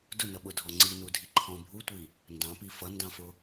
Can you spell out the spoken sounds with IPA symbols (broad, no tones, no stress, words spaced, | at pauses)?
dʊnʌɓʊdʱɔ ŋ͡ǀinudʱi ǃʰɔ̃bʱutʷi | ndɑ̃pi fʌndɑ̃fʊ